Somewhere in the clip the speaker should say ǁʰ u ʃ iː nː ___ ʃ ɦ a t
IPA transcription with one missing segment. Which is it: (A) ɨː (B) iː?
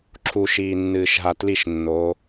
A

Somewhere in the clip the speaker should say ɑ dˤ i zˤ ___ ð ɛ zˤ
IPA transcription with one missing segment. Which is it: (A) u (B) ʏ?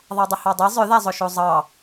B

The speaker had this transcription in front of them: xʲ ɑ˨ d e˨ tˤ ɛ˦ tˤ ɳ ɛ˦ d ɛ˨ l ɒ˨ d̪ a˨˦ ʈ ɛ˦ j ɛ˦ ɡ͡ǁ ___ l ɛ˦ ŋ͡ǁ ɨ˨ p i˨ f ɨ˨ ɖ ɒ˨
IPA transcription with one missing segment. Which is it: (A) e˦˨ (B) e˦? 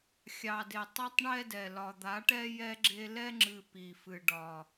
B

